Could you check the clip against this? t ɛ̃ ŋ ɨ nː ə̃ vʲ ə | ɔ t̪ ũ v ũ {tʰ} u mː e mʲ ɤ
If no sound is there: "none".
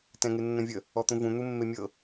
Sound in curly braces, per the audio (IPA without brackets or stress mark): n̪